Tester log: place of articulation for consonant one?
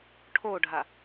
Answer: retroflex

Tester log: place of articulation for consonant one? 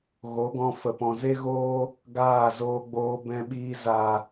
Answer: velar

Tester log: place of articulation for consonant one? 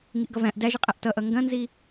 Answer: velar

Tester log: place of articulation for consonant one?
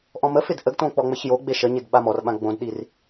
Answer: glottal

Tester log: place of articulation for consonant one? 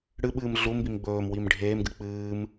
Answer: retroflex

